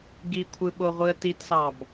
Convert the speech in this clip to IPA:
ɡ i kʷʰ ɯ ɓ o ʁʷ ɯ ə̯ t i t s ɑ b

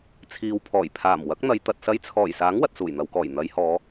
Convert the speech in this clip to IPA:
t͡sʰ iː˨ w pʰ ɔː˨˩ j pʰ aː˨˩ m w ɐ˨˥ k̚ n̪ ɐ˨˧ j t̪ ɐ˨ t̚ s ɐ˧ j t͡sʰ ɔː˨˩ j s aː˨˥ ŋ w ɐ˨ t̚ s uː˨˩ j n̪ ɐ˨ w k ɔː˨˩ j n̪ ɐ˨˧ j h ɔː˨˧

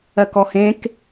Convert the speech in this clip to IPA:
ɜ k ɔ h ẽ k

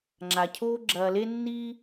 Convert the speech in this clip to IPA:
ŋ͡ǁ a˩ cʰ oː˦ ɡ͡ǁ ɐː˨ l e˦ nː iː˦

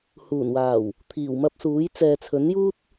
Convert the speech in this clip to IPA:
h uː˨˩ n w aː˨˩ w | t̪ʰ iː˨˩ w m ɐ˧ p̚ s uː˨˥ j t͡s ɛː˨ t͡sʰ ɵ˨˥ n j uː˥ t̚

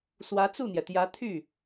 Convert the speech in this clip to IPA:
s w ä˧˥ t͡s u˥˩ n̪ j ɛ˩ t̪ j ä˧˥ t̪ʰ y˥˩

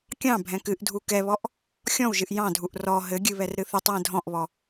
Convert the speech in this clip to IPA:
kʲ ɑ̃ bʱ ɛ̃ k ɨ ʔ dʱ u k ɛ β ɔ ʔ | xʲ ɔ̃ w ʒ ɨ ʔ j ɑ̃ dʱ u ʔ r ɔ ɦ ɘ ɡʲ ɨ β ɛ r ɾ ɨ θ ɨ tˤ w ɛ̃ dʱ ɔ̃ ʔ β ɔ

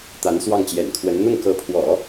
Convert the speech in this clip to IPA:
t̪ a˧˥ n s w ɑ˥˩ ŋ t͡ɕ j ɛ̰˨˩ n kʰ w ə˧˥ n n̪ ʊ˥˩ ŋ k ɤ˧˥ pʰ w ɔ̰˨˩˦

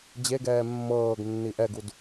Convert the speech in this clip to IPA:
d͡ʑ e ɡ ɛː mː ɤː ɡ nː i ʔ ɛ ɡ u d

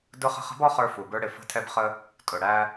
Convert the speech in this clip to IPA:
d ʊ˧˥ χ ə̤˧ χ ə̤˧˥ b ɔ˥ χ ə˞˧ f u˩ b ə˞˧ ɽ ɪ˩ f ə̤˧˥ tʰ ɛ˧ b χ ə˧ | tʼ ʊ˩ ɽ æ˧

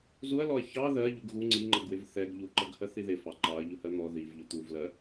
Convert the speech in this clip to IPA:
z u ɐ̯ l ɔ ɐ̯ ç ɑ ð ɜ ʎ u ɡ ɣ u ŋ͡ǀ i ŋ͡ǃ ʌ ɡ w ɪ v θ ɛ ɡ ʎ u ǃ ʌ ɡ h ɜ θ i ð ɪ f ɑ ǃ ɑ ɐ̯ ʎ ʊ h ɜ n̪ ɔ ð i v ʎ ʊ t̪ u v l ɜ

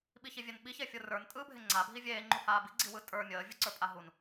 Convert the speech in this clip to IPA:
ɓ i ç i vʲ e n ɓ i ç e fʲ ɯ r ə˞ n tʼ ɯː bʱ e ŋ͡ǀ a bʱ i vʲ eː ŋ͡ǃ u h aː b i ɡ͡ǀ i w ɯ tʼ ə˞ mʲ əː vʲ ɯ ǀ ə˞ pʼ a ɦ u n

